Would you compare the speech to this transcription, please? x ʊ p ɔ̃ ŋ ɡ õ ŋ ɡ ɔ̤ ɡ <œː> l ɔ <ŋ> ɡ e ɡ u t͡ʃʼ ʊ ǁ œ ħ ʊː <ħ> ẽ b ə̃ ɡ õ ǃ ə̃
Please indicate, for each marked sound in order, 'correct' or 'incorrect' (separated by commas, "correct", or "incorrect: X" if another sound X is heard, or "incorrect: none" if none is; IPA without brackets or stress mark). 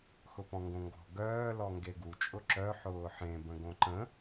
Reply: correct, correct, correct